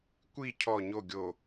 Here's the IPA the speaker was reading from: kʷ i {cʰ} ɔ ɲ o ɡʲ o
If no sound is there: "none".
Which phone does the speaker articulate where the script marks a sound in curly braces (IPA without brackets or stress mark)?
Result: cʰ